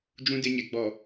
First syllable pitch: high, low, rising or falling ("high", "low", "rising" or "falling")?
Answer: high